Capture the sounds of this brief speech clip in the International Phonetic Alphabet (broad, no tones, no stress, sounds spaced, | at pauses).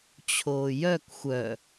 t͡ɕʰ oː j œ k xʷ œ